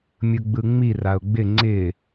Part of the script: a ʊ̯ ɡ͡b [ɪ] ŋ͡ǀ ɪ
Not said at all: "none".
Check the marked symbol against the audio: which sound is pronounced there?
ɪ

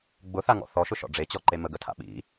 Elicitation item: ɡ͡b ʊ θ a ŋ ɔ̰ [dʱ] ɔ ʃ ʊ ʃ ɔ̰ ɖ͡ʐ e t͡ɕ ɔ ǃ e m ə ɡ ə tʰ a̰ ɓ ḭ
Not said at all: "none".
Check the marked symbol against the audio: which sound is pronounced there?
θ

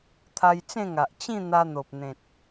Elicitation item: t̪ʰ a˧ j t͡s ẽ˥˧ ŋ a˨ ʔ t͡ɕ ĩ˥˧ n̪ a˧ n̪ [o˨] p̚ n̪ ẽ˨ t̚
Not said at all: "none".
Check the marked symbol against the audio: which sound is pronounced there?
o˨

